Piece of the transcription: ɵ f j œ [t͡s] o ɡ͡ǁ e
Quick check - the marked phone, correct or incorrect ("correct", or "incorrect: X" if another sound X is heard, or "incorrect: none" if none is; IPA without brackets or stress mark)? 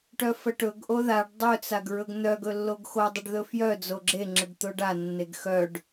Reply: incorrect: d͡z